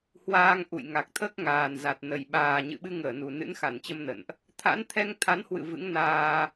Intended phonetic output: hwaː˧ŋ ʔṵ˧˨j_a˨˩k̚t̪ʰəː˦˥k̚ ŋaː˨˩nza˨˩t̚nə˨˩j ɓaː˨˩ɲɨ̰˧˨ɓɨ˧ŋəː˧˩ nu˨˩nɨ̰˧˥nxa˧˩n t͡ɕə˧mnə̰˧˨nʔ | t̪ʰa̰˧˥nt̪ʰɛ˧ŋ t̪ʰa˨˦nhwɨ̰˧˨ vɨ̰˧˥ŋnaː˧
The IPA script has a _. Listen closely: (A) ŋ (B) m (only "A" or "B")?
A